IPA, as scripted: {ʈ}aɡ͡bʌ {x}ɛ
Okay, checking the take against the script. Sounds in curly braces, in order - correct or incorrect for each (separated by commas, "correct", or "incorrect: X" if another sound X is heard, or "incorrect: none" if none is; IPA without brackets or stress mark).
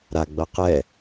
incorrect: ɾ, incorrect: q